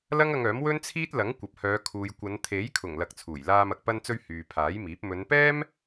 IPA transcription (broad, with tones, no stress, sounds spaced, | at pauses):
l ɐ˥ ŋ ɐ˧ ŋ œː˨˥ m w ɵ˥ n t͡sʰ iː˥ t̚ l ɐ˨˥ ŋ kʷ ɐ˨ p̚ h œː˨˧ kʰ uː˨ j kʷ ɐ˨˧ n t̪ʰ e˨˥ j kʰ ʊ˨˩ ŋ l ɐ˨ k̚ t͡sʰ uː˨˩ j l aː˧ m ɐ˨ k̚ p ɐ˧ n t͡s ɵ˧ ɥ h yː˨ pʰ aː˨˥ j m iː˨˥ p̚ m ɵ˨˧ n p ɛː˥ m